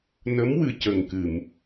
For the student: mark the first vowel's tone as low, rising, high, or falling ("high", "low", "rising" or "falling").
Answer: rising